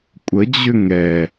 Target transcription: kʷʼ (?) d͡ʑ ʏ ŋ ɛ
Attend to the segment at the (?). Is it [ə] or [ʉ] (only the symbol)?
ə